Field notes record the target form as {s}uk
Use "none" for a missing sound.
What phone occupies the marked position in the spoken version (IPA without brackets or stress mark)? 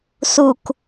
s